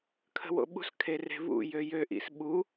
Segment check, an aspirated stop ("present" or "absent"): present